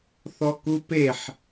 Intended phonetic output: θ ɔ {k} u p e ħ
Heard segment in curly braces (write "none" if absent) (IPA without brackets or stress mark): k